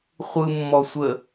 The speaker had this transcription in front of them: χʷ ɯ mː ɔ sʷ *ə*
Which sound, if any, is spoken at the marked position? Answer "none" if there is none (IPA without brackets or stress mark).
ə